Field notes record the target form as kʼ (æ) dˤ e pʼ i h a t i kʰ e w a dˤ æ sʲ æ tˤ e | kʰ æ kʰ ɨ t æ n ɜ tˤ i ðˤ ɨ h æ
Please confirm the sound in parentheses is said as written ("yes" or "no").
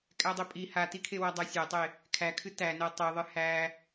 yes